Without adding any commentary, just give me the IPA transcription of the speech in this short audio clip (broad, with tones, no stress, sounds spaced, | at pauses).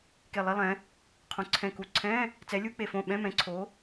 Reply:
k e˧˩ lˠ i˧˥˧ lˠ ɛ̃˨˥ | qʰ õ˨˥ ǀʰ ɛ̃˧˩ k u˧˩ ǀʰ ɛ̃˧˥˧ | t͡s ɛ˨˥ lʲ u˧˥˧ k͡p e˧˩ f õ˧˩ ɓ ɛ̃˧˥˧ m ɛ̃˨˥ ǀʰ o˨˥